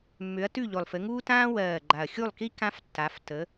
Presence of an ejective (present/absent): absent